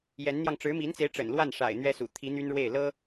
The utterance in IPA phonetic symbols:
j ɛ˧˥ n n̪ j ɑ˧ ŋ ʈ͡ʂ ɻ̩˧˥ m i˧˥ n t͡s e˧˥ ɪ̯ ʈ͡ʂ ə̰˨˩ n l w a˥˩ n ʂ a̰˨˩ ɪ̯ n̪ ɥ ɛ˥ s ṵ˨˩ t̪ʰ i˧˥ n̪ y˥ n ɻ w e˥˩ ɪ̯ l ɤ˥

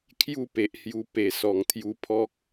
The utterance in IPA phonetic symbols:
kʰ j u˥˧ p e˨ ʔ h j u˧ p e˨˩ s ɔ˨˩ ŋ t̪ʰ j u˧ pʰ ɔ˦ k̚

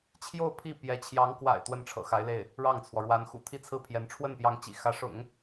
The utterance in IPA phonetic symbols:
t͡ɕʰ j o˥˧ ʊ̯ pʰ i˥˩ p j ɛ˧˥ t͡ɕʰ j ɑ˧˥ ŋ k w a̰˨˩ ɪ̯ t̪ w ə˥˩ n ʈ͡ʂʰ ɤ̰˨˩ x a˧˥ ɪ̯ l e˥˩ ɪ̯ | ɻ ɑ˥˩ ŋ t͡sʰ w ɔ˩ ɻ w a˧˥ n x ṵ˨˩ t̪ʰ i˥˧ t͡sʰ ɹ̩˥˩ pʰ j ɛ˧˥ n ʈ͡ʂʰ w ə˥˩ n p j ɑ˧˥ ŋ t͡ɕ ḭ˨˩ x ä˧˥ ʂ ʊ̰˨˩˦ ŋ

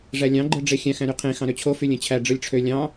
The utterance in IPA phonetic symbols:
ʐ æ lʲ ɑ̃ ɡ͡ǃ ɯ ɖ͡ʐ e xʲ æ̃ x æ̃ ɾ y qʰ ẽ x ɑ̃ ɾ ø t͡ɕʰ o f y lʲ ẽ t͡ɕʰ æ ɖ͡ʐ ɯ lʲ ʈ͡ʂʰ ø lʲ ɑ̃

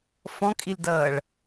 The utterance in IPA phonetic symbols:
f ɔ̃ kʼ i l d ʌː ɭ

